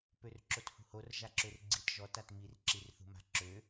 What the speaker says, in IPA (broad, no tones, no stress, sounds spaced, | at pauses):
p ø r ǁ o t h ṳ h o r ʒ a ǁ ø r ɡ͡ǀ i t ʒ ɔ t a t m i r ǁ i r θ ṳ m a̤ ǁ ø